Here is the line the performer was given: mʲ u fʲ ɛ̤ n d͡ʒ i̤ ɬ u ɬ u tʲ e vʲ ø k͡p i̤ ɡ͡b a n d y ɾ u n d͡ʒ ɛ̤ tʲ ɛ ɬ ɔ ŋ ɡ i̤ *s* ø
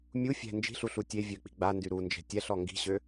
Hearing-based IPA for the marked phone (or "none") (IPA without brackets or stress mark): ɕ